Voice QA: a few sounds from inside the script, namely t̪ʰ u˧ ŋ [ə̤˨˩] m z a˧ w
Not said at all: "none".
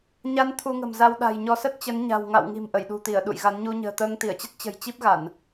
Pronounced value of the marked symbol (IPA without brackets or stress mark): ə̤˨˩